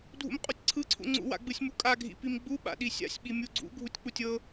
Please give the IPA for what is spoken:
dʱ ṵ m qʼ u tʲ ǀʰ ɯ ǀʰ ṵ ŋ͡ǀ ṵ w a̰ ɡ͡b ɯ sʲ m u kʼ a ɡʱ ḭ p i m ɡ͡b u ɓ a̰ ɗ i sʲ a̰ sʲ ɓ i mʲ u ɡ͡ǀ ṵ ɡʱ u tʲ k͡p u tʲ ɤ

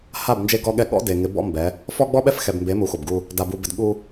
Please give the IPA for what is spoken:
h a˦˨ b n d͡ʒ e˦ ɡ ɔ˦ ɠ ɛ˦˨ ɠ ɔ̰˦ d e˨ ŋ ɪ˨˦ b ɔ̰˦ m b ɛ˨˦ | f ɔ˦ ɡ͡b ɔ˦ ɓ ɛ˦ f x ɛ˨ b m b e˨˦ m u˨˦ x o˨ b ɡ u˦ | d a˨ b u˨ b ɪ˨ d ɠ u˦

